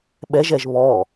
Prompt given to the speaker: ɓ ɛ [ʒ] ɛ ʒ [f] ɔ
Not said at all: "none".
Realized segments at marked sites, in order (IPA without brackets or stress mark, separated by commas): ʒ, β